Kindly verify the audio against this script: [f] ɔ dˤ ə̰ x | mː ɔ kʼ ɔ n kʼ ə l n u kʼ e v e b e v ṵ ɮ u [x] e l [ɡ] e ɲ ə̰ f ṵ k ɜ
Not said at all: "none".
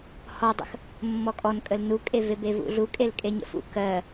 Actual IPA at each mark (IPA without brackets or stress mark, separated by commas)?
h, kʼ, kʼ